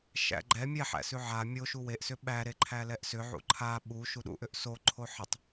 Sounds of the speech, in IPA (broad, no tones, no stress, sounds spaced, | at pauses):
ʃ æ̰ ɡ͡ǃ ɛ mʲ ɛ ħ æ̰ s ʉ ʕ a mʲ o ʃ u w e ʔ s ʏ ɓ æ ɾ e ǃʰ æ l ɛ ʔ s ʏ ʕ ṵ ǃʰ a ɓ u ʃ u ɗ ṵ ʔ ʏ ʔ s o ǃʰ o ħ ə tˤ